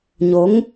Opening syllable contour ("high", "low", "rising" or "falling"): rising